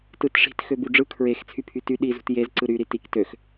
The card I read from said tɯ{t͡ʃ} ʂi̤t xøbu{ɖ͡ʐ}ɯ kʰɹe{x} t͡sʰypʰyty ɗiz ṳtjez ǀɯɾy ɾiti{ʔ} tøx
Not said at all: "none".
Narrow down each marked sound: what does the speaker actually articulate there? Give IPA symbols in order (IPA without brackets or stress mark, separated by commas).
t, ɖ͡ʐ, x, k